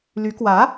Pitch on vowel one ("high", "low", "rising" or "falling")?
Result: rising